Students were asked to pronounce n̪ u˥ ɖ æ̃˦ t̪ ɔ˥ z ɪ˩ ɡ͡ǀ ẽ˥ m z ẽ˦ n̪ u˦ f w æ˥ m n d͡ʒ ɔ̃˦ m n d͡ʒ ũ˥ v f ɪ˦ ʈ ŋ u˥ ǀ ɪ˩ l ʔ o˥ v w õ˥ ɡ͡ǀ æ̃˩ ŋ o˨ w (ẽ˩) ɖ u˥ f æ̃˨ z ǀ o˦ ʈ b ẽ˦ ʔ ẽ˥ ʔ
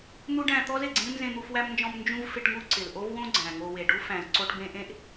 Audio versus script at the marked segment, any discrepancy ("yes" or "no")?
yes